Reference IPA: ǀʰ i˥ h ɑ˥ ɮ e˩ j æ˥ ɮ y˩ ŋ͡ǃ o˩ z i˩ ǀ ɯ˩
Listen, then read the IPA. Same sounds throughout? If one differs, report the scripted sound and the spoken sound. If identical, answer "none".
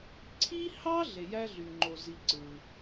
none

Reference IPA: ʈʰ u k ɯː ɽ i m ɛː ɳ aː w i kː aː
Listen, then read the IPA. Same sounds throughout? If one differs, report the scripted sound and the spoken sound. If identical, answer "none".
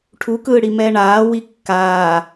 none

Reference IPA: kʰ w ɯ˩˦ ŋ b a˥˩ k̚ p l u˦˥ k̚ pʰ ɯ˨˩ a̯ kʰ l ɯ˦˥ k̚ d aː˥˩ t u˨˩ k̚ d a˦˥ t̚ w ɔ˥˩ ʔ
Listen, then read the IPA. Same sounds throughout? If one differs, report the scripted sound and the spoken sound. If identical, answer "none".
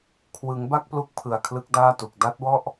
none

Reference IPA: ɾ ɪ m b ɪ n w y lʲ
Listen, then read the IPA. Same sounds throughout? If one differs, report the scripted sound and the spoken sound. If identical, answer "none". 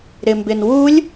y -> u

